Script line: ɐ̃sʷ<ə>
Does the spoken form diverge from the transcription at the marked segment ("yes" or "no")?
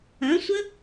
no